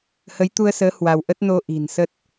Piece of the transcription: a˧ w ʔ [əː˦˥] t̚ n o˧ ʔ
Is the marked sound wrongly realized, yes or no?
yes